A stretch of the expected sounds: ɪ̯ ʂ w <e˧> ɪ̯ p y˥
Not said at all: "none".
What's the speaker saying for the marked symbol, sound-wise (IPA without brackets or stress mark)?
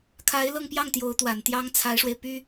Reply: e˧